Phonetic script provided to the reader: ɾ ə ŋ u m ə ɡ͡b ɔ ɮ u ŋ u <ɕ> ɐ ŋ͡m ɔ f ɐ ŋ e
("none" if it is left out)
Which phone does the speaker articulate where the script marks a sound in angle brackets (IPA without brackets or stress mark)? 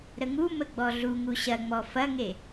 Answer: ɕ